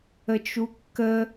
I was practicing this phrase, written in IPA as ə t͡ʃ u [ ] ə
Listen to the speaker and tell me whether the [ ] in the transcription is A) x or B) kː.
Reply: B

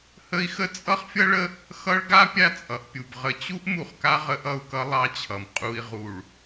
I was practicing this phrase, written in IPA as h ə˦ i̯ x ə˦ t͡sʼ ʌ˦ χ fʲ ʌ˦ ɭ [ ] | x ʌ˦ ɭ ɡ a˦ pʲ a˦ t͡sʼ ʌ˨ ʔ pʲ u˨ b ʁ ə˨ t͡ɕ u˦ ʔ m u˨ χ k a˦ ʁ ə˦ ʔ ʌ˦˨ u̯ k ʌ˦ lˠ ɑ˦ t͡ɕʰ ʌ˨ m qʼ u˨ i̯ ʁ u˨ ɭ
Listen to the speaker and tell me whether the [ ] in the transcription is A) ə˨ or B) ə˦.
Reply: B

